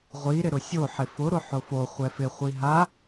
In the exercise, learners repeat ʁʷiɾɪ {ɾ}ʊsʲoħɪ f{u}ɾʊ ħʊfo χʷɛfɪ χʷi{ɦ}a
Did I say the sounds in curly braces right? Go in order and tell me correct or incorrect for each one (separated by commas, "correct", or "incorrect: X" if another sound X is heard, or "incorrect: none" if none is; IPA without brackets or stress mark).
correct, incorrect: ʊ, correct